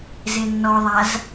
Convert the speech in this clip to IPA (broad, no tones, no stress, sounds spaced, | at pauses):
z e nː ɔ ðˤ a z